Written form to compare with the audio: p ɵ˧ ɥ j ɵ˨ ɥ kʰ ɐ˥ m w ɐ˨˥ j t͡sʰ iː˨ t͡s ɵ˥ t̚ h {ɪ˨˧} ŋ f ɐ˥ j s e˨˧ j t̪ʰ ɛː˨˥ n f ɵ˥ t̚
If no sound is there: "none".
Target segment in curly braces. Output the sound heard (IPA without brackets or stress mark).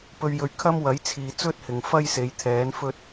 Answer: ɪ˨